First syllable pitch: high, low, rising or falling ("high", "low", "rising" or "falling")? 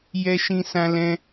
high